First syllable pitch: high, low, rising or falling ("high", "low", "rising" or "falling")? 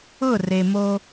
falling